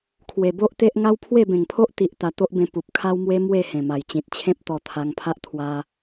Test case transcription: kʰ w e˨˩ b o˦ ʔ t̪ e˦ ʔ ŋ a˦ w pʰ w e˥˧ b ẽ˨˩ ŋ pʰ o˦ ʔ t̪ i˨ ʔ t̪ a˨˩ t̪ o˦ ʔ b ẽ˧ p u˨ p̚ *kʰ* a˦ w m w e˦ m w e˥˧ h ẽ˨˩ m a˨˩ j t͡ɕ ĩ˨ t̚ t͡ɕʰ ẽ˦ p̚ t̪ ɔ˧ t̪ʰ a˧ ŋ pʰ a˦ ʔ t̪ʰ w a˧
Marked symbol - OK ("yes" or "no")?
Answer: yes